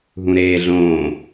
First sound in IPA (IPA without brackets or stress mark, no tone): ɦ